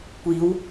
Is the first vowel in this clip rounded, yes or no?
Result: no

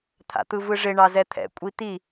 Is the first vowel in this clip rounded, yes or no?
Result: no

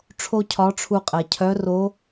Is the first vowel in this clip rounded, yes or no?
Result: yes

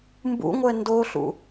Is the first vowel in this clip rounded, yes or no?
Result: yes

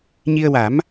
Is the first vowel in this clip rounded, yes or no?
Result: no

